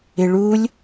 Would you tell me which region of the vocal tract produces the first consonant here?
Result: retroflex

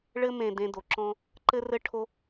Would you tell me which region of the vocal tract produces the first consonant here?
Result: retroflex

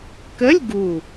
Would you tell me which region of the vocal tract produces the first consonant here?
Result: velum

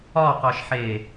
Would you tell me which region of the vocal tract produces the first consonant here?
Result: uvula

